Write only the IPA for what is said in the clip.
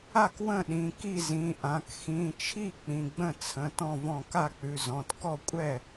a˥˩kwə̃˥˩ɗĩ˩˧˩ ki˥˩zĩ˩˧˩ʔã˩˧˩k xĩ˩˧˩t͡ʃʰi˥˩ k͡pĩ˩˧˩ɡ͡bə̃˥˩t͡sʰə̃˩˧˩ tɔ̃˥˩vɔ̃˥˩ ka˥˩k͡pʉ˩˧˩zɔ̃˩˧˩t kɔ˥˩kʷʼɛ˥˩

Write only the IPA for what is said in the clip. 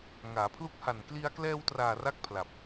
ŋaː˩˦pʰlu˦˥k̚ ha˨˩n kli˧a̯ klɛː˧wtraː˨˩ ra˦˥k̚ pʰla˨˩p̚

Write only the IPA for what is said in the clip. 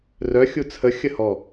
rœ xʲut͡sʰə xʲəhɔ

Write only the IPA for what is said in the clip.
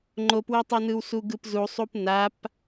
ŋ͡ǃopwetˤʌnɯw suɡɯpzusˤup nap

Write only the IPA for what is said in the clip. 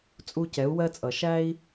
t͡sʼu˧cɛ˨˦u̯wɜ˧t͡sʼʌ˨ ʃæ˧i̯

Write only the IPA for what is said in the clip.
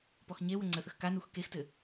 pɔxɲewə ŋ͡ǀəθəx kanux kextɘ

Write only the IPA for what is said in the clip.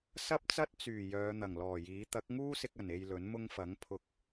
sɐ˥p̚t͡sɐ˥t̚ t͡syː˨˩ jœː˨˧n̪ɐ˨˩ŋlɔː˨˩jiː˨˥ t̪ɐ˨˥k̚ŋuː˥sɪ˧k̚ɐ˨˩n e˨j lɵ˨˥nmʊ˥ŋfɐ˨˥ŋ pʰʊ˨˥k̚

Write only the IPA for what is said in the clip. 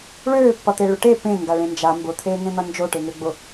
ɭøːpːʌt̪e ɭʊʈe pẽ ŋɡaɭẽnd͡ʒa mbʊt̪ʰeːŋẽn̪ʌ nd͡ʒoʈeŋøɡ͡bʊ

